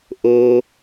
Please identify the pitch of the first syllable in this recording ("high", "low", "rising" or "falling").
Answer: low